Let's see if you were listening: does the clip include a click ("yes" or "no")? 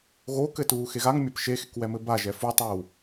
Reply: no